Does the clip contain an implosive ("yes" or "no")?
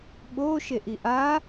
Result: yes